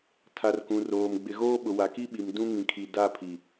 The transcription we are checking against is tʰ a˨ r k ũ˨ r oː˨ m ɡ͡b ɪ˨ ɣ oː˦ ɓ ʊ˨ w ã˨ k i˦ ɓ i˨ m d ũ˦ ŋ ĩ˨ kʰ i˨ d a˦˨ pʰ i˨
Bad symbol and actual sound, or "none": ã˨ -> a˨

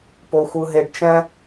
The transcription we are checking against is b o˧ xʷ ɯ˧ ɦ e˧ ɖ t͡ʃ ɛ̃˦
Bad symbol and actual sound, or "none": b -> p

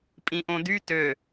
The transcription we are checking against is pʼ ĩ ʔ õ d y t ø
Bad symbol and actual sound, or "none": none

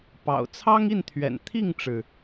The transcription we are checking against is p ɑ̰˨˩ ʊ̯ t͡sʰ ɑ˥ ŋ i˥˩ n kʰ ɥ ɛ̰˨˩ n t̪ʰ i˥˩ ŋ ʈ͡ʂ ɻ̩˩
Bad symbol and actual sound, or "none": kʰ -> t̪ʰ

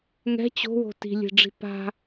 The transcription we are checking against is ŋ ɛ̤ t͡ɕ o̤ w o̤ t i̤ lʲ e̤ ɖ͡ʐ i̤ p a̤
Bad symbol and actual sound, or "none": none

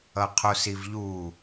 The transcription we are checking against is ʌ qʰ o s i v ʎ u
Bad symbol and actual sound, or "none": none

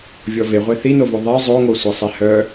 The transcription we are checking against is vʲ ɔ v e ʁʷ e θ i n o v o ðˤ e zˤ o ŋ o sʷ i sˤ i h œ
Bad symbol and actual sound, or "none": none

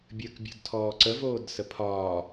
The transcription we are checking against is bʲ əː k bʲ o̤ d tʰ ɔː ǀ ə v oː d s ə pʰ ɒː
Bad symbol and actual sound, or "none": none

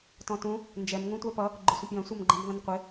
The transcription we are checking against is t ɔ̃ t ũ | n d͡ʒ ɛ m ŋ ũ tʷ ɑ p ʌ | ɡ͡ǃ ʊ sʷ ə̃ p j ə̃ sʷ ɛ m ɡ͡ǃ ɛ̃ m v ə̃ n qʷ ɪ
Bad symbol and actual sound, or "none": none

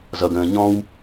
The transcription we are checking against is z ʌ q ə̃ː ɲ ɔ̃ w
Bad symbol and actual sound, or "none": q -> ɡ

